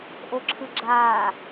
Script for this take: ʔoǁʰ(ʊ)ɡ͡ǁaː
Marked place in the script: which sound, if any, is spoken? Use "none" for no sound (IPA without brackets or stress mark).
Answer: ɯ